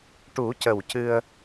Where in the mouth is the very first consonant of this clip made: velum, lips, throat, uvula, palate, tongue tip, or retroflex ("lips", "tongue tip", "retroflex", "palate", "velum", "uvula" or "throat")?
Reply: retroflex